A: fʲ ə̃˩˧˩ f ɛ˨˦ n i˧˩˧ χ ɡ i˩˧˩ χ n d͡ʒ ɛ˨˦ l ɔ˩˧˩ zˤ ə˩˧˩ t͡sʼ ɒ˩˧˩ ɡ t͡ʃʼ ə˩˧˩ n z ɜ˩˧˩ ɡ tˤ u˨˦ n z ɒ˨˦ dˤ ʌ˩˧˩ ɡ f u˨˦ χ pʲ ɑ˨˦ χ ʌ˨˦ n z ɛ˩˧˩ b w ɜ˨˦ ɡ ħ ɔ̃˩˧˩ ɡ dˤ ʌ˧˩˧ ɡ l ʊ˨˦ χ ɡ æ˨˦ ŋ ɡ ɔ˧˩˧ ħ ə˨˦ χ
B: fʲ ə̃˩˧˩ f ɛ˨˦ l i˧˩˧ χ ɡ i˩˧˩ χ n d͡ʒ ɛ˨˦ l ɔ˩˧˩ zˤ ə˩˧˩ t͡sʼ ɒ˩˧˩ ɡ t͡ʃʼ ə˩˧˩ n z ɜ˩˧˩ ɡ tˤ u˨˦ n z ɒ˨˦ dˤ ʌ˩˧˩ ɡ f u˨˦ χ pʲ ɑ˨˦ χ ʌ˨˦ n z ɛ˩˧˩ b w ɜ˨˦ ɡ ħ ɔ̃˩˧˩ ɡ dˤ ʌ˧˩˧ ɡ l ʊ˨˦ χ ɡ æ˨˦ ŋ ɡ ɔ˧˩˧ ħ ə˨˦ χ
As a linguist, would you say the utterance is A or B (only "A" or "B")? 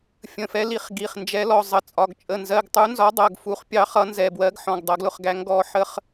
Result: B